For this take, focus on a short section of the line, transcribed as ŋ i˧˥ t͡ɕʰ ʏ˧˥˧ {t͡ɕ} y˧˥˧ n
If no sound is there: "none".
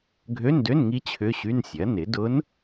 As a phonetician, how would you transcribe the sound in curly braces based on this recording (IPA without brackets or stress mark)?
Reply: ɕ